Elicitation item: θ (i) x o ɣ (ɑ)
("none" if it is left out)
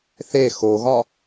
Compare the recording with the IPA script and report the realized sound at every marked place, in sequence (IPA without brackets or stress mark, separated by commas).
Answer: e, ɒ